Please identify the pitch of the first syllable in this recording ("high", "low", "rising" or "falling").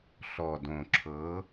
low